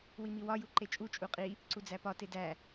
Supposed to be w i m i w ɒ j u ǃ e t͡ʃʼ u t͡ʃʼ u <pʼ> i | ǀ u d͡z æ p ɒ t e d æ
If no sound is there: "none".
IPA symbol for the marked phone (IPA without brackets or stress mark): qʼ